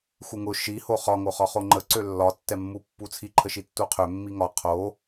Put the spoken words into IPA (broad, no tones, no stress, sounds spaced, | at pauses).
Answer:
x u ŋ ʊ ʃ i h o χ ɒ ŋ o χ ɒ χ o ŋ͡ǃ ə ǀ ø lː ɒ tː ɛ mː u pː u t͡sʰ i ǃʰ ə ʃ i tː u qʰ ø mː i ŋ ɒ qʰ o